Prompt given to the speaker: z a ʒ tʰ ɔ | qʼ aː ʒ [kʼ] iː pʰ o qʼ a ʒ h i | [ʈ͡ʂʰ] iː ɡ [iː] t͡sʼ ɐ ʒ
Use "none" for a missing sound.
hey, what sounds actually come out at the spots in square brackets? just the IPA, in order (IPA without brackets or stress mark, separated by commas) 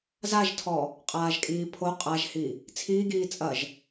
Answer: kʼ, t͡sʰ, iː